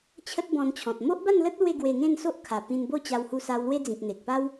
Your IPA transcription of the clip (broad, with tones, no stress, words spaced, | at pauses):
t͡ɕʰə˦t̚bɔ̃˧nt͡ɕʰɔ̃˨t̚ mo˦ʔba˥˧nlə˦t̚ lwe˥˧ɡwe˧ŋẽ˥˧n so˦ʔkʰa˨˩pĩ˧nbo˥˧ t͡ɕa˧whu˧sa˧w lwe˦d͡zĩ˨k̚ n̪e˨k̚pa˦w